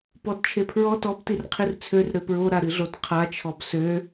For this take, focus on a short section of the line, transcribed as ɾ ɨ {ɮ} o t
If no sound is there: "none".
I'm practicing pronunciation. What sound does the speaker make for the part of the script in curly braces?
ɮ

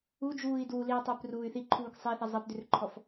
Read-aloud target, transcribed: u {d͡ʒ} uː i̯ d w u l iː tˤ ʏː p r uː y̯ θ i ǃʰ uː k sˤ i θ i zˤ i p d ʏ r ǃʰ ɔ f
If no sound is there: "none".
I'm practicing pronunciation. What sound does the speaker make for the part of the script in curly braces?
d͡ʒ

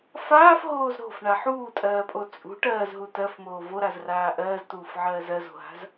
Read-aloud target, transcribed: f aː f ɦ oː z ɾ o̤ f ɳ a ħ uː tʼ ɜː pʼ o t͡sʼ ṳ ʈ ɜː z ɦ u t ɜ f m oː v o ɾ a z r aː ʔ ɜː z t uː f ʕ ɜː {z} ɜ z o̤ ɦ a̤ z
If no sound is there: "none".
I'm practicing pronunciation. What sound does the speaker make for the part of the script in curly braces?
z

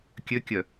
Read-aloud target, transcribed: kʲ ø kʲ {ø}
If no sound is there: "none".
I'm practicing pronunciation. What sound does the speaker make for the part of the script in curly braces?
œ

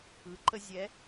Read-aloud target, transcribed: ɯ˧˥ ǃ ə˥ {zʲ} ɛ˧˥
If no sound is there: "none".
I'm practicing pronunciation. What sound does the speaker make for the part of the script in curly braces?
zʲ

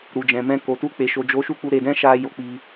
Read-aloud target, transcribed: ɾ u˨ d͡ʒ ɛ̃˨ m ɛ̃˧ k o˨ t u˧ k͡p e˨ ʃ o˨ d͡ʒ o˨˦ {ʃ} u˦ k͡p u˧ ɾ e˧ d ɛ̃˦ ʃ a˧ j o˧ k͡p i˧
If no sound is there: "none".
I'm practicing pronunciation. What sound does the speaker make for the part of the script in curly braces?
ʃ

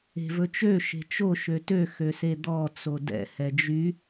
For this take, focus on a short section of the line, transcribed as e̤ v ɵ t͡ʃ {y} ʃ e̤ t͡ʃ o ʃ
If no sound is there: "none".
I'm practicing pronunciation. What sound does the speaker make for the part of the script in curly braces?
ø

